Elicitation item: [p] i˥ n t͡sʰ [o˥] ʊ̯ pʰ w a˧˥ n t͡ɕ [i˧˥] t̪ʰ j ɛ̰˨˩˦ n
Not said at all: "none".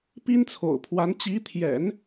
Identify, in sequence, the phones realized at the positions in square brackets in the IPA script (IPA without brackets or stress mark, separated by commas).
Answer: p, o̰˨˩, i˧˥